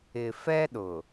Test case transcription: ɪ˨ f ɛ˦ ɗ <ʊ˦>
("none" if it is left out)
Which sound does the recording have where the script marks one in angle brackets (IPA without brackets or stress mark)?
ʊ˨